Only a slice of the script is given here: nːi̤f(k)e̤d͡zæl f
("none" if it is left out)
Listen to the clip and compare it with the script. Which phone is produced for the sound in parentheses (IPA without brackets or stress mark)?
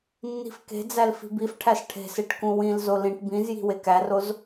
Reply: k